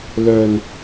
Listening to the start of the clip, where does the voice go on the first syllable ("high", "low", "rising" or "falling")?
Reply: low